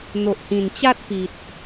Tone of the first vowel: low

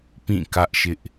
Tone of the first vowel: falling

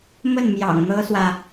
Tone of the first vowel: falling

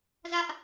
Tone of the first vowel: high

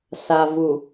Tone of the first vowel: low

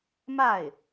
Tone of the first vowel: falling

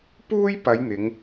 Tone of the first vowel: high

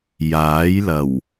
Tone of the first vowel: rising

